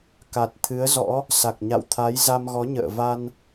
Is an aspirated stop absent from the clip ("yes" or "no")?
no